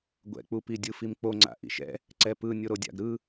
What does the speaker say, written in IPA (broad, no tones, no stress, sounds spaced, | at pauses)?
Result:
ɡʷ ɛ̰ k͡p u p i dʲ ɯ f i m k͡p o ŋ͡ǀ a̰ ʔ ḭ ʃ ɛ̰ | ǀ ɛ p ɯ nʲ o ɾ o dʲ a̰ ɡ ɾ ɯ